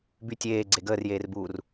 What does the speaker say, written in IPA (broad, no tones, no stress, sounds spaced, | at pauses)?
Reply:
b y tʲ eː ɡ͡ǀ e ɡ əː r j eː r b uː r